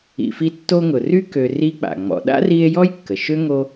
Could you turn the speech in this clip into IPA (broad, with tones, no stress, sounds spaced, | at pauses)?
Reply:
ḭ˨ f i˦ tː o˦ ŋ ʊ˨ r y˥ k ø˨ r i˦ k͡p a̰˩ ŋ͡m ɔ̰˨ ɗ a̰˥ r i˦ e̯ j ɔ˥ j kː ə˩ ʃ ø˥ ŋ o˦